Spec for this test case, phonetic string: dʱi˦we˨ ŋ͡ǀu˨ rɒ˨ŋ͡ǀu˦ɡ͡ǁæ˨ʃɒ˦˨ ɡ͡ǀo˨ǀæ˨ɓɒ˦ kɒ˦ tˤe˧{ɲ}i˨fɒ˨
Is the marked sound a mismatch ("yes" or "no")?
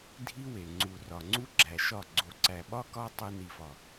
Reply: yes